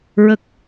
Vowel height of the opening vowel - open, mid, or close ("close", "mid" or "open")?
mid